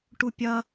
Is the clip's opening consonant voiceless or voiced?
voiceless